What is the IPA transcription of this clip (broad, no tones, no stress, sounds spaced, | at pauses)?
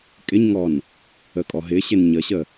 kʼ ɪ ɲ ŋ ɔ n | ə kʼ ɔ ɦ ɪ ɕ ɪ n ɲ ə ɕ ə